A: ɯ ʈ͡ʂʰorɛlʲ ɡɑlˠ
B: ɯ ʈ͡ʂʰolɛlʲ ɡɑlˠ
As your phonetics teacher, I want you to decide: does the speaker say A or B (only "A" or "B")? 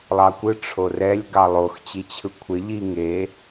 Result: A